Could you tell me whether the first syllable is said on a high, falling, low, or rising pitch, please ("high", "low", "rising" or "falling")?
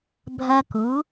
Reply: high